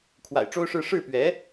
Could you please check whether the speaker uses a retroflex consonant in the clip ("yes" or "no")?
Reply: yes